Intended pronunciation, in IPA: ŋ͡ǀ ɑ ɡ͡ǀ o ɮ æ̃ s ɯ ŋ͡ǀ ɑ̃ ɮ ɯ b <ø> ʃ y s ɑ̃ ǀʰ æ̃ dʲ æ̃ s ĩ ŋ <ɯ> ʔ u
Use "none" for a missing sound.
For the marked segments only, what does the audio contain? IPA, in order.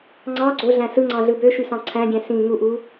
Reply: ø, u

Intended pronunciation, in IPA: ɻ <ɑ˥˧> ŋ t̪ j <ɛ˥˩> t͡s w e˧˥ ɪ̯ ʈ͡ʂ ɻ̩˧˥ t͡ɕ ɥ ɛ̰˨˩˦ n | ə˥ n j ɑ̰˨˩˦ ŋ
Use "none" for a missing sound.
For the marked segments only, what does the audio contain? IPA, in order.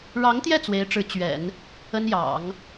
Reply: ɑ˧˥, ɛ˥˩

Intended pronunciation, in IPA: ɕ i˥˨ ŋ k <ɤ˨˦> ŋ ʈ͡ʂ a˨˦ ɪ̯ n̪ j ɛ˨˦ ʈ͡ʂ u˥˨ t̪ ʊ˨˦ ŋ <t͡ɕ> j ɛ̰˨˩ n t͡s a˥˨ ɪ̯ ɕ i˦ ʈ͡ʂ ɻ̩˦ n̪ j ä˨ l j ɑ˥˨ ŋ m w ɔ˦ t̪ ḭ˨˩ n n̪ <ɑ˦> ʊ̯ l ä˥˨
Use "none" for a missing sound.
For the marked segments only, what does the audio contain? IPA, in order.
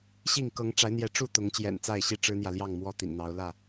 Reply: ɤ˨˦, t͡ɕ, ɑ˨˦

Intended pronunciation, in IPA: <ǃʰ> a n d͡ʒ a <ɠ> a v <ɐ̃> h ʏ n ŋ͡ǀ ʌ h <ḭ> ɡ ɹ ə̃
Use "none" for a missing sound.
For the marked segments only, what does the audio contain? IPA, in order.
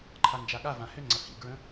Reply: ǃʰ, ɠ, ã, ḭ

